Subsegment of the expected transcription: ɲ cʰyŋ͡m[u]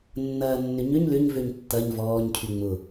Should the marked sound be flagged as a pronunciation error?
yes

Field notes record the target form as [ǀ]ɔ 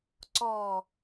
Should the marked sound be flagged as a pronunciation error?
no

